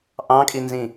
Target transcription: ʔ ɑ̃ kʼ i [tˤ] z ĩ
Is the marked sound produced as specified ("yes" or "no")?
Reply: no